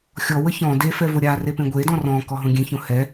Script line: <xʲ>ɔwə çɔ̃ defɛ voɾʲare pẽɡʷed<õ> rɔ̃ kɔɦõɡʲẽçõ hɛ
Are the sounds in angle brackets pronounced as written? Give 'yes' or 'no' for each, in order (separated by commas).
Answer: yes, no